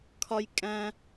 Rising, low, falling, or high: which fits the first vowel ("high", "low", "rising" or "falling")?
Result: high